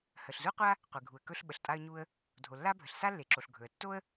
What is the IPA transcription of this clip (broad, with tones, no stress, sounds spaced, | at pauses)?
h ə˩ ɬ z u˥ qʷ a˥ | qʷ e˩ ɡʱ u˩ ə̯ k ɵ˥ ɬ ɓ ə˩ ɬ tʼ a˥ ə̯ ɲ u˥ ə̯ | dʱ o˩ lː a˥ bʱ ə˩ ɬ s a˥ lː e˩ ǁ o˩ ɬ ɡʱ ɵ˩ ə̯ tː o˥ ə̯